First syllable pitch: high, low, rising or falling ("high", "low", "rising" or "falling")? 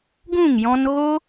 falling